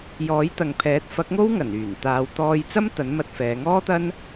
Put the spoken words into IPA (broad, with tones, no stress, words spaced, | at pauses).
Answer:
jɔː˨˥jt̪ɐ˨ŋpʰɛː˨˥t̚ fɐ˨˥k̚ŋo˥w ŋɐ˨˩nyː˨˩n t̪aː˨˧wt̪ɔː˧j t͡sɐ˥m t̪ɐ˨˥n mɐ˧t̚fɛː˨˧ ŋɔː˥t̪ɐ˥n